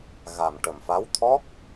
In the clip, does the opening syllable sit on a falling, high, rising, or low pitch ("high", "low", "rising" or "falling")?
low